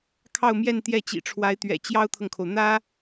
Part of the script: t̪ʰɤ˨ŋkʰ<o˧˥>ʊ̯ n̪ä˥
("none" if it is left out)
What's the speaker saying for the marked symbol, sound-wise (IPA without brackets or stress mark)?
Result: o˩